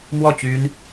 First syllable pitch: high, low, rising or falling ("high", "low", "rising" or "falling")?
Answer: falling